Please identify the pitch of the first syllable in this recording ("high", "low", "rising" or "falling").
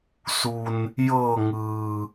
low